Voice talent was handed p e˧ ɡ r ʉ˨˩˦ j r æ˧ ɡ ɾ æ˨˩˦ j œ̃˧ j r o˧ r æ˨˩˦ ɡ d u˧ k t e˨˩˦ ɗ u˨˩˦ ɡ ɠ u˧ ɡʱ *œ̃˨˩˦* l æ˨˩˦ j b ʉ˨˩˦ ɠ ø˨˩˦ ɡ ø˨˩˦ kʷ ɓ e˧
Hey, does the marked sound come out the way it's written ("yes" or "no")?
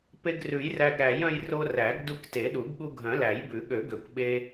yes